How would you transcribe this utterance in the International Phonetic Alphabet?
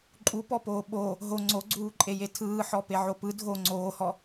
ǃʼ u p ɔ p oː ɓ o | ɦ o ŋ͡ǀ o ɡ͡ǀ uː ǃʼ e j e tʰ ɯː ħ ɔ p e ʕ o p ɯ dʱ o ŋ͡ǀ oː h ɔ

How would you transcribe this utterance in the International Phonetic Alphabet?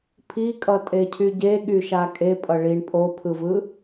pʰ i kʼ ʌ tʼ e cʰ y ɟ e ɠ y ʃ a kʼ e pʼ ʌ ɭ i ɳ pʼ o pʰ ɯ v ɯ

